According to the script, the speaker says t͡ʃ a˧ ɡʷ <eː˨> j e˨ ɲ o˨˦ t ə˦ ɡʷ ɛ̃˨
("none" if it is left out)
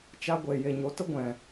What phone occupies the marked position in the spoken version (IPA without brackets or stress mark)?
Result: e˨